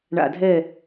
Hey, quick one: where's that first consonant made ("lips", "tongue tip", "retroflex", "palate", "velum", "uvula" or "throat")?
retroflex